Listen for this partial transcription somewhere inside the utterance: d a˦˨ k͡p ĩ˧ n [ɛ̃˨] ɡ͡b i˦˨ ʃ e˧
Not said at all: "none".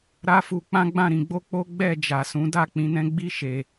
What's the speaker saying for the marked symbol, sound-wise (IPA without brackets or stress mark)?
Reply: ɛ̃˦